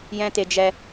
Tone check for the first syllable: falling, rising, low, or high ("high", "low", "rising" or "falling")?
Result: high